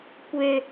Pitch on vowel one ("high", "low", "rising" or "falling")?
low